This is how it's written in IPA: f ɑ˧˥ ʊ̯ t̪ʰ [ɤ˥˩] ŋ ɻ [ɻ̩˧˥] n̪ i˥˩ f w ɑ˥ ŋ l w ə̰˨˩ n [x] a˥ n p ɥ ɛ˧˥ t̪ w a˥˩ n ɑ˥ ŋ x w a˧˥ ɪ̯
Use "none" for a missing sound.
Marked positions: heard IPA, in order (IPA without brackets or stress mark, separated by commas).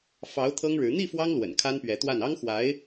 ɤ˥, ɻ̩˧˥, kʰ